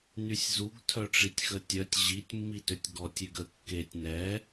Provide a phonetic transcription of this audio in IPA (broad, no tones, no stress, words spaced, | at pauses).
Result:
nysʲzuɡ tʰœʈ͡ʂitʲxətʲœtʲ ʑitʲ mːitøtʲɡɔtʲ yɡə kːetʲ nɛ